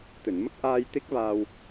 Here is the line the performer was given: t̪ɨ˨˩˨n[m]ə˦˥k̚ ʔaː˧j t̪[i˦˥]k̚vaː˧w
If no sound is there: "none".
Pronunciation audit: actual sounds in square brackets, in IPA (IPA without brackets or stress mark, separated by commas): m, i˦˥